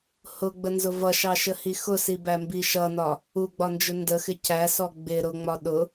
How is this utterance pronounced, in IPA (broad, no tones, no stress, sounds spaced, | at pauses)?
h ʊ ɡ͡b ə n z ʊ v ʌ ʃ ɑ ʃ ə h i x ʊ s i b æ m b i ʃ ʌ n ɒ | u ɡ͡b ɒ n d͡ʒ ʊ n d ə x ɪ c æ s ɔ ɡ͡b ɪ ɾ ʊ ŋ͡m ɒ ɗ ʊ